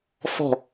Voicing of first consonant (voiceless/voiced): voiceless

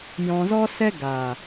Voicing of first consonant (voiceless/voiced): voiced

